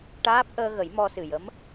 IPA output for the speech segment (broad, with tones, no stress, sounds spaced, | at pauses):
ʈ aː˦˥ p̚ ʔ əː˧ ɣ ə˨˩˦ j m ɔ˧ s ɨ˨˩ j ə˧˥ m